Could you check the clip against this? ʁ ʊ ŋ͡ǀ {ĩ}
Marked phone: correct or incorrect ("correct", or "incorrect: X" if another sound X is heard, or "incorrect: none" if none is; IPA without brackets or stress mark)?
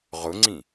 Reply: correct